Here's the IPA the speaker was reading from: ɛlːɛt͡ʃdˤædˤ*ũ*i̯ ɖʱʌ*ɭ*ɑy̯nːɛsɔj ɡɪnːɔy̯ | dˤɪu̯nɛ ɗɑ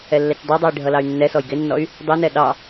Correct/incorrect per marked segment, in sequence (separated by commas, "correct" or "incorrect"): incorrect, incorrect